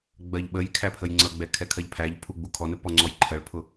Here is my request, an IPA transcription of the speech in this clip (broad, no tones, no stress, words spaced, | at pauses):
ɡ͡bɜʎɓəjkʰæ pʰəjŋ͡ǀʌɡ͡bɛ kʰɛkʰɜʎpʰæʎpʰu ɡ͡bukʰɔnə pɔŋ͡ǀɔjǃʰɜɭpʰʊ